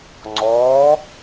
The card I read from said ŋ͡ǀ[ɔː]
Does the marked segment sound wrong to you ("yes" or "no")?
no